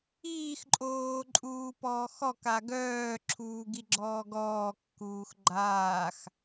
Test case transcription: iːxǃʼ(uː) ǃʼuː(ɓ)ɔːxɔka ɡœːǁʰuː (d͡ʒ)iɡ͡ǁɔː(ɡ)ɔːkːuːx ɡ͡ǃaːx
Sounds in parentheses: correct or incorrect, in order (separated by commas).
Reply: incorrect, incorrect, incorrect, correct